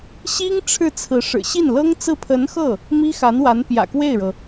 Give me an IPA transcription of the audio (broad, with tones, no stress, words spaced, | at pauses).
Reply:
ɕi˥ŋ ʈ͡ʂʰɻ̩˥˩t͡sʰɹ̩˧˥ʂɻ̩˨˩ ɕi˥˩nlɤ˥ŋt͡sɹ̩˥˩ pʰə˧˥nxɤ˥˩ | mi˥xa˧˥nwa˧˥n pjä̰˨˩kwe˥˩ɪ̯ɻɤ˩